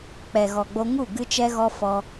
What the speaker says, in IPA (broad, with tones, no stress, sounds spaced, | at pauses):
k͡p ɛ˨ ɣ ɔ˨ ɡ͡b o˧ ŋ u˦˨ ɡ ɨ˧ t͡ʃ ɛ˧ ɣ ɔ˧ f ɔ˧